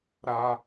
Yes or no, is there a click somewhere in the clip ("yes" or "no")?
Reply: no